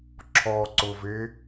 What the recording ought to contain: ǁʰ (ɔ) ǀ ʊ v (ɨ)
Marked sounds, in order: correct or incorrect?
correct, incorrect: e

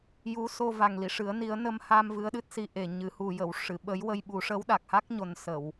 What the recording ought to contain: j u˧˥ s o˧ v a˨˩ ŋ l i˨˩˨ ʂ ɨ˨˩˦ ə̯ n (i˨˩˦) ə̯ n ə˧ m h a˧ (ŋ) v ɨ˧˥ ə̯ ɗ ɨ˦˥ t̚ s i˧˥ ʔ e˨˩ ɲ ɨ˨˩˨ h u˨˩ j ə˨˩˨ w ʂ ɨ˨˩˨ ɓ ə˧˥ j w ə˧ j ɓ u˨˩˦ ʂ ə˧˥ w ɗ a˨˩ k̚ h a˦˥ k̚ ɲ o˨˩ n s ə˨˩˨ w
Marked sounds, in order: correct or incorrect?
correct, incorrect: m

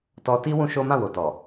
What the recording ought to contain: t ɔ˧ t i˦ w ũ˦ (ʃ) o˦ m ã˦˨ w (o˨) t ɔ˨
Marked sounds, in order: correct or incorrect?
correct, correct

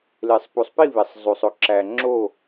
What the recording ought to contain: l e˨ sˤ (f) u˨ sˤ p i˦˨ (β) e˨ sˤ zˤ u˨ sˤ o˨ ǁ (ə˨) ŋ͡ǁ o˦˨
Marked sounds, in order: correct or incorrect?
incorrect: p, correct, incorrect: æ˨

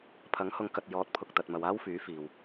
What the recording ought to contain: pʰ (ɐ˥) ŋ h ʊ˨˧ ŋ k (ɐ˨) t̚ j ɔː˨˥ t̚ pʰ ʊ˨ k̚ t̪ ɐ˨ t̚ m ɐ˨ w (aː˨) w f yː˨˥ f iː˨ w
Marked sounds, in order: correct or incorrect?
incorrect: ɐ˨˥, correct, incorrect: aː˥

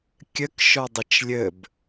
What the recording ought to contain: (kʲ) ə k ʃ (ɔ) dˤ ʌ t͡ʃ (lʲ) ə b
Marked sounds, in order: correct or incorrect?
correct, correct, correct

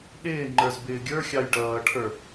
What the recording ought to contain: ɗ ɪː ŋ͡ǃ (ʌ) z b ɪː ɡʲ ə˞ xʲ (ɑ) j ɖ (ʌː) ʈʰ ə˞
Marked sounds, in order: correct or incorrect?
incorrect: ə˞, correct, correct

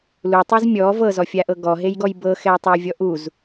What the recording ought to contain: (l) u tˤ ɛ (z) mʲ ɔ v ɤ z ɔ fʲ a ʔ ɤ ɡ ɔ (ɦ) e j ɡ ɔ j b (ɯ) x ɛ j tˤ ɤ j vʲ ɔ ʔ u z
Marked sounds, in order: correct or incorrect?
correct, correct, correct, incorrect: ɤ

